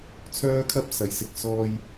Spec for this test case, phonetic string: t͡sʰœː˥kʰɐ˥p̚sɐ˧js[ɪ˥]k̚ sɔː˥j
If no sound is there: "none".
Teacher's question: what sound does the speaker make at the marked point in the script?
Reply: ɪ˧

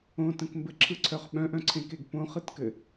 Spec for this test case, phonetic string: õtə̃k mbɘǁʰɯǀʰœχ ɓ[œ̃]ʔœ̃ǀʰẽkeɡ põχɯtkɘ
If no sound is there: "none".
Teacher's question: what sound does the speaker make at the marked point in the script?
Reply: œ̃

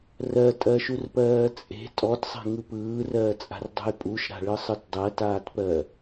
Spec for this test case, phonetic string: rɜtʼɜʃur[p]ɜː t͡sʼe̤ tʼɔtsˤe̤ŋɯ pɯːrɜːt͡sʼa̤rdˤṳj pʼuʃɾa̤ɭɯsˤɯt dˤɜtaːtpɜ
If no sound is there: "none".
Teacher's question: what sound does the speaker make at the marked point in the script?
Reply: p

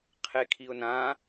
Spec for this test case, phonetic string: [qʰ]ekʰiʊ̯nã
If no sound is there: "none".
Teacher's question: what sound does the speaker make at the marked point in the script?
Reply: qʰ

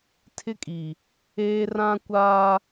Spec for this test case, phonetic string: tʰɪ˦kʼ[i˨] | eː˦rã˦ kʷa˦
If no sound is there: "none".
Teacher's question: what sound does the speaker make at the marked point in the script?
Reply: i˨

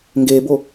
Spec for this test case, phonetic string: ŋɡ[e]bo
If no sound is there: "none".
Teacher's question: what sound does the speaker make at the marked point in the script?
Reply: e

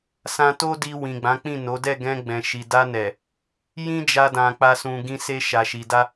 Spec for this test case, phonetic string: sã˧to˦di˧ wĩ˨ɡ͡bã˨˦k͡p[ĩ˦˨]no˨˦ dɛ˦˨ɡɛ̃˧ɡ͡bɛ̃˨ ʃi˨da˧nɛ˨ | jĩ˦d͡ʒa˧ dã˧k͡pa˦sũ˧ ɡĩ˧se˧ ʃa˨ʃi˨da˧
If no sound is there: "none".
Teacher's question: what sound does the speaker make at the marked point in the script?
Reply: ĩ˦˨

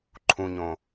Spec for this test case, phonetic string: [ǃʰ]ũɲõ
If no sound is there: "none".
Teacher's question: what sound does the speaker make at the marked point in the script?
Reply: ǃʰ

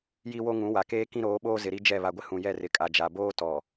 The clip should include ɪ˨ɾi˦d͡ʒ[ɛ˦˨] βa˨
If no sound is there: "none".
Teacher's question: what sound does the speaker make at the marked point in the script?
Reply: ɛ˦˨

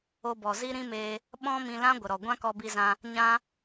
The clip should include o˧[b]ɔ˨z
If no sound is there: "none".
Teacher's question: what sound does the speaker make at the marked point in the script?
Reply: b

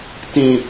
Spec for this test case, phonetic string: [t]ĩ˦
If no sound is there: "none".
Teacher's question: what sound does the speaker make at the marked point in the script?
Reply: t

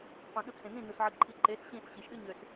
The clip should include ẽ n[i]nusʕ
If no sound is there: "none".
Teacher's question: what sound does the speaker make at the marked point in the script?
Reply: ĩ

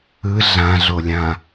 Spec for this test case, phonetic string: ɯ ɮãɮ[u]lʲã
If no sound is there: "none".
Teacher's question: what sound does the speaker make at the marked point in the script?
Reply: o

